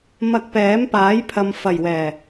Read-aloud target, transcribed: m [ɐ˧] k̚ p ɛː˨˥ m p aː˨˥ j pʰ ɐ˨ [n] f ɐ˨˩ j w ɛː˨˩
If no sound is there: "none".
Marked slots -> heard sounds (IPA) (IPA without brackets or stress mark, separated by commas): ɐ˧, m